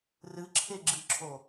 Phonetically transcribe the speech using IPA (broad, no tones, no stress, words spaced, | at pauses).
rɨǁʰeɡ͡ǁɨǁʰo